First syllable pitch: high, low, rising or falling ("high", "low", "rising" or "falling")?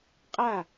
falling